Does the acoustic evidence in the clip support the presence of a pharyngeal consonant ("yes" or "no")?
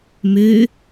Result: no